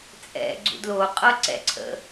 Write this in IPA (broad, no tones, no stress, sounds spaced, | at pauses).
t͡sʼ ɛ̰ ɡ͡ǀ ṵ d l o qʼ ɤ ǀ ɛ̰ ǀʰ ə̰